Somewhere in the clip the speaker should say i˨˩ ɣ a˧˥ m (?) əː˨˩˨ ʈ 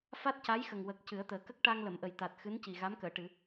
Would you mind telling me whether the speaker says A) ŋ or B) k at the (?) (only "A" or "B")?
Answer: B